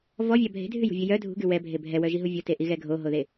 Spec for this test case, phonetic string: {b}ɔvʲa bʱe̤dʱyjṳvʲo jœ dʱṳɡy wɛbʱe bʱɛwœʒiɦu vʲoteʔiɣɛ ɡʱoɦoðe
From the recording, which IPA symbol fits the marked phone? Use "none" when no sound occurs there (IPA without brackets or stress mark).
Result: v